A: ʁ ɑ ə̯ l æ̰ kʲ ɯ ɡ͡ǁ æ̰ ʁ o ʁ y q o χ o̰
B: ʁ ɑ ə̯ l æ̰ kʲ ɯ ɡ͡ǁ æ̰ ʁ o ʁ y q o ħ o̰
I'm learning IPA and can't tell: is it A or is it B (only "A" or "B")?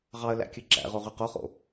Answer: A